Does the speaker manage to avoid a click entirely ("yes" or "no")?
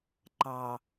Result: no